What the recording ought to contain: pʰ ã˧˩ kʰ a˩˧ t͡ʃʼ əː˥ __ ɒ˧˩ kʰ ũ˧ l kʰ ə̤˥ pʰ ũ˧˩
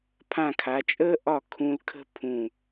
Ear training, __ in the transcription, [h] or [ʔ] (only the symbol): ʔ